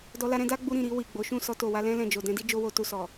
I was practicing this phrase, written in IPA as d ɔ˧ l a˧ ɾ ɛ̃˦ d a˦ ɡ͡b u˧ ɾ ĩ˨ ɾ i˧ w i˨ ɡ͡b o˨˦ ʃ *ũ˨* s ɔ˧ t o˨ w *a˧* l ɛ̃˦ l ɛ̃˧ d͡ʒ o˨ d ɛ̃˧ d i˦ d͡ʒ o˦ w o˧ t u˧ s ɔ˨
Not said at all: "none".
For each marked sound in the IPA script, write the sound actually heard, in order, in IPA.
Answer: ũ˦˨, a˧

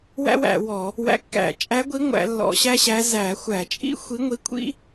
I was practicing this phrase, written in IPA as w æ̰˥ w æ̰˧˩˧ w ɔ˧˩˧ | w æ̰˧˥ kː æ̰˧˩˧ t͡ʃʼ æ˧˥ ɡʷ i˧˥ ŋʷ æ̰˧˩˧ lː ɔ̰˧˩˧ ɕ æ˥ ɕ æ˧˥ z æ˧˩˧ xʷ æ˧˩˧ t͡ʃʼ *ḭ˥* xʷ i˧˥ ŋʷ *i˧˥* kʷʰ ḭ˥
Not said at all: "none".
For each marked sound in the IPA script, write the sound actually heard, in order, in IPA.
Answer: ḭ˥, i˧˥

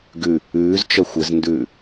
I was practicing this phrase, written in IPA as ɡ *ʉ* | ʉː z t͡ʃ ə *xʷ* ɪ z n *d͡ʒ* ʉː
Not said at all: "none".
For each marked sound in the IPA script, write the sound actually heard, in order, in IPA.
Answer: ʉ, xʷ, d

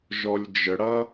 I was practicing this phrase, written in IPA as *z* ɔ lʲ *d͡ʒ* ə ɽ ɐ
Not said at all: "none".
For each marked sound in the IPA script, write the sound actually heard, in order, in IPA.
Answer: ʒ, d͡ʒ

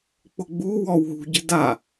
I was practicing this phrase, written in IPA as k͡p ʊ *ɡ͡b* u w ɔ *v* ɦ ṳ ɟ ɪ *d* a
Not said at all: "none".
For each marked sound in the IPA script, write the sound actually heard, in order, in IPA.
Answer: ɡ͡b, w, d

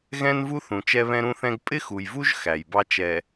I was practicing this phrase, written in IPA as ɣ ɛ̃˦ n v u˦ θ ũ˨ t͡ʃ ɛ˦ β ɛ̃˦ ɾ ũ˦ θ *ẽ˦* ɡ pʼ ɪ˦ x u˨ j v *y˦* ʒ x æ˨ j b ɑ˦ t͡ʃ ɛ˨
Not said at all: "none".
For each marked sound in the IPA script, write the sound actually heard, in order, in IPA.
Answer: ɛ̃˦, u˦

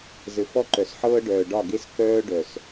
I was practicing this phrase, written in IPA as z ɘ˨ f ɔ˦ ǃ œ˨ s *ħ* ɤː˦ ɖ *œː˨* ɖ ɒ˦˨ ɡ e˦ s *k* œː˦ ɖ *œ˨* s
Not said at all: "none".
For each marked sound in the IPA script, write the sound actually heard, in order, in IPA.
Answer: ħ, œː˨, k, œ˨

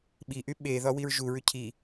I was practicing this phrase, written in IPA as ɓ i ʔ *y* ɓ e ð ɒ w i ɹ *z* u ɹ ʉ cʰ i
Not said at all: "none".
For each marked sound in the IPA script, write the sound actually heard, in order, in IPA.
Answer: y, ʒ

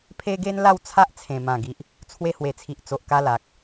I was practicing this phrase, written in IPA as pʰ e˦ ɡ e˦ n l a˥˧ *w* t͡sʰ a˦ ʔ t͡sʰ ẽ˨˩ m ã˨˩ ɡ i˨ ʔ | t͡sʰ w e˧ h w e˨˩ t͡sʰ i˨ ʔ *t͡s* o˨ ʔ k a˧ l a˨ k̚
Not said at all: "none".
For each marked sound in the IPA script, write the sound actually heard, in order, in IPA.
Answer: w, t͡s

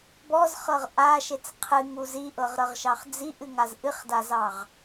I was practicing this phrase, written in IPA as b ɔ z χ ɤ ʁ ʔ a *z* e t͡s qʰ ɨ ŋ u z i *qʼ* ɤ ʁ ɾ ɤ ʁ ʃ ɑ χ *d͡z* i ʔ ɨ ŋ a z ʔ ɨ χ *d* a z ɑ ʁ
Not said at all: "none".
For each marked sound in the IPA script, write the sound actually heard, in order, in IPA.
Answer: ʃ, ʔ, d͡z, d

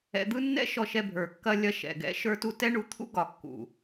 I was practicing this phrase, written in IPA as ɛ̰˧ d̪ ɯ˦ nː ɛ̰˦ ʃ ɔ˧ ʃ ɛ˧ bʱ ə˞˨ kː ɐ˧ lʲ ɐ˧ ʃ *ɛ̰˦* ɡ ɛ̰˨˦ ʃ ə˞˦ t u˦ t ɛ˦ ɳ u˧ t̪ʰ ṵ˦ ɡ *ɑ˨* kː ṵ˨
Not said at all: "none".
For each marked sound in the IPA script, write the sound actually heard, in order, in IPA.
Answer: ɛ̰˨, ɒ˨

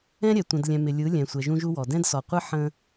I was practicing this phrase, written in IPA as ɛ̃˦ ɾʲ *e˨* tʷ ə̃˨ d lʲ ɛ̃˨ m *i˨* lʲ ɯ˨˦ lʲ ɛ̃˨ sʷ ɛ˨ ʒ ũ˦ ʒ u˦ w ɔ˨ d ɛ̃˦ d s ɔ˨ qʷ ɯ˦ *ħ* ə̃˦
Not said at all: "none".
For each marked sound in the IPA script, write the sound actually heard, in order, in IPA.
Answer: ɛ˨, ɪ˨, ħ

